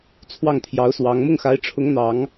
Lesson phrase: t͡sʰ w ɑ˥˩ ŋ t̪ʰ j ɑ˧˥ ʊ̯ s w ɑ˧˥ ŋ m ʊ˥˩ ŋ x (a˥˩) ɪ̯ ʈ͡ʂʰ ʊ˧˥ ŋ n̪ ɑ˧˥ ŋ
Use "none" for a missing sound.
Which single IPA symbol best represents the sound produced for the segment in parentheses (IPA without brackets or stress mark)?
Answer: a˧˥